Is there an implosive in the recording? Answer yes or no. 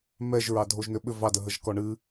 yes